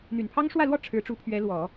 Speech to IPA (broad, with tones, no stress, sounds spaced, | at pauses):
n̪ y˨˩ n pʰ ɑ˥ ŋ ʂ w ä˥˧ l w ɔ˥˩ ʈ͡ʂʰ ɻ̩˧˥ ʈ͡ʂ u˧˥ pʰ ɥ ɛ˧˥ l w ɔ˨˩˦